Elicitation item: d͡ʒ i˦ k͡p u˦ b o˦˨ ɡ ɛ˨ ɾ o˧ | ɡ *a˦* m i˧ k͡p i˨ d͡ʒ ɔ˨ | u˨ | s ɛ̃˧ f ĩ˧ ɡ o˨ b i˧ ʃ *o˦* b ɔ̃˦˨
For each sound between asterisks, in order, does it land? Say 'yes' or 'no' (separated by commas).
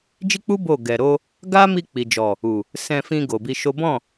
yes, yes